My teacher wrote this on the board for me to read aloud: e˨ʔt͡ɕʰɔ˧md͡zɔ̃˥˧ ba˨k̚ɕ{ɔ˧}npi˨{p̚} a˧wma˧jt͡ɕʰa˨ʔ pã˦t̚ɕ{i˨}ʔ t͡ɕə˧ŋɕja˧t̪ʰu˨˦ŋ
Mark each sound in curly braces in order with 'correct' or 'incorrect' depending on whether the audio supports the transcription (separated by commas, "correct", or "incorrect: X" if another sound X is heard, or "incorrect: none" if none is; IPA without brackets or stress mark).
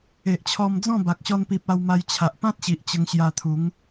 correct, correct, correct